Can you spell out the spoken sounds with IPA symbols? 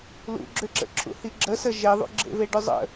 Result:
l ṵ ɡ͡ǁ ʏ ǁ ə̰ ǁʰ ṵ h i ɡ͡ǁ ə s ə ʒ e ðˤ ṵ ɡ͡ǁ ḛ v e ɖ ʏ zˤ ə̰

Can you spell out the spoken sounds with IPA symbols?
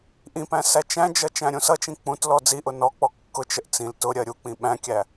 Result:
ʔ ĩ p æ̃ s æ t͡ʃ æ̃ d͡ʒ ʌ t͡ʃ æ̃ ɾʲ ũ s ʌ t͡ʃ ĩ k͡p ũ t l ɔ d͡z i ʔ ʊ n ɔ k͡p ɔ kː ʊ t͡ʃ ə ʔ t͡s ĩ l t ʊ ɾʲ ɜ ɾʲ u k͡p ĩ ɓ æ̃ kʲ æ

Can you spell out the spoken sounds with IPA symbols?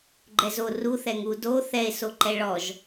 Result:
ɡ͡ǃ ɛ z o r u θ ɛ ŋ u d o θ ɛ e̯ s o ǃ ɛ ɭ ɔ ʒ

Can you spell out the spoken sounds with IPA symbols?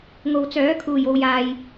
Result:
ŋ o˨ w t͡s œː˨˥ kʰ uː˨˩ j o˨ w j aː˨ j

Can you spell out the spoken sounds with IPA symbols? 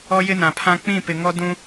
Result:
ɔ˦ j ɪ˦ n ã˨ pʰ ã˦ k͡p ĩ˦˨ p ɪ˨ ŋ ɔ˦ d ũ˦

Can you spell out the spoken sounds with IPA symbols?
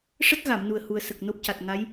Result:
ʂ ə˦˥ k̚ ɣ a˨˩˨ m n u˨˩ ə̯ h u˨˩ ə̯ s ə˨˩ k̚ n o˦˥ p̚ c a˨˩ t̚ ŋ a˧˥ j

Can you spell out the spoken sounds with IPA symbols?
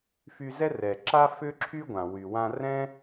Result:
f y˧ z ɛ˥ r ɛ˩ ǁ a˥ f ʏ˥ ǁʰ y˥ ɡʷ ã˩ w y˩ w ã˧ r ɛ̃˥

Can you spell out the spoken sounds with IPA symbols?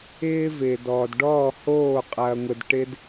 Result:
ɪː˦ v ɪː˨ d ɔː˨ d ɖ ɔː˦˨ h oː˦˨ qʼ ɐː˧ ŋʷ ɪ˧ d ʈ ɪ˦ d

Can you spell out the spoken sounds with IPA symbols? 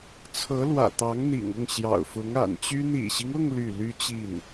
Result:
t͡sʰ ɤ˧˥ l w ä̰˨˩ t̪ ɑ˧˥ ŋ n̪ ḭ˨˩ ŋ ʊ˥˩ ŋ ɕ j ɑ̰˨˩ ʊ̯ f ʊ˧˥ ŋ a̰˨˩ n t͡ɕ y˥ n̪ ḭ˨˩ ɕ i˦ ŋ ʊ˥˧ ŋ l y˥˩ l y˥ t͡ɕ i˥˩ n

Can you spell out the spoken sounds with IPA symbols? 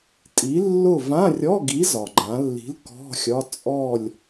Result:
tʼ i˨˥ lː ʊ˥˨ v ã˧˥˧ rʲ ɔ˧˥˧ ɡ i˨˥ z ɒ˩ ɡ͡ǃ ã˩˧ lː i̤˨˥ l k ɔ̤˧˥˧ xʲ ɒ˧˥˧ t͡sʼ ɔ˥˨ lʲ

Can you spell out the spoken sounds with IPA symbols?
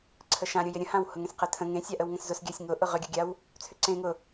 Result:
ǀʰ ə ʃ ã ɾʲ ʊ j ɪ ɾʲ ə̃ h ã w h ʊ ŋ ẽ s q ə tʰ ə̃ ŋ ẽ sʲ a ʔ ə w ŋ ə̃ s z ʊ s ɡʲ a sʲ ŋ ʊ ʔ ʊ ʁ ʏ ɡʲ ʊ ɡʲ a w | t͡sʰ ʏ ǀ ẽ ŋ ʊ

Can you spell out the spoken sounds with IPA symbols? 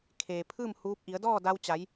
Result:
kʰ eː˩ pʰ ɯː˥˨ m h uː˧˥ p̚ ʔ i˩˧ ə̯ d ɔː˥˨ d a˧ w t͡ɕ a˩˧ j

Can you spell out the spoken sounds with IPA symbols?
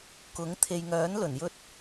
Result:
k ʊ˨˥ ŋ t̪ʰ e˨ j ŋ œː˨˥ n l ɵ˨˩ n j ɵ˧ t̚

